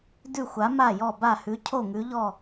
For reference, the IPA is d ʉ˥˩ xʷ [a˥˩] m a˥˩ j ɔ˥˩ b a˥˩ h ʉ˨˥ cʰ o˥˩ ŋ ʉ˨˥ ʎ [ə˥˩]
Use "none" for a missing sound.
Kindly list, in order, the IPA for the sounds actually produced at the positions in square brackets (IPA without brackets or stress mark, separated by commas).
a˨˥, ɔ˥˩